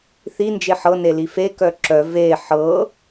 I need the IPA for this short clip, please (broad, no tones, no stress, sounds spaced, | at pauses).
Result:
θ i n d͡ʒ e ħ ɤ n e l i f e k œ ǁ œ v e ħ ɤ